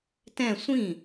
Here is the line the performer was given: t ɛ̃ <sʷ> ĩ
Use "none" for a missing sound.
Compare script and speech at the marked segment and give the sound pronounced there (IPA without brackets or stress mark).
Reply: sʷ